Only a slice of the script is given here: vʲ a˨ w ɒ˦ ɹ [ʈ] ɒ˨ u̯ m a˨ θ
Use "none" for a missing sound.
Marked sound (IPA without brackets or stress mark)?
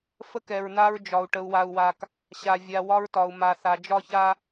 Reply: t